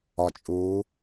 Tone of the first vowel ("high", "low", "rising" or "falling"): low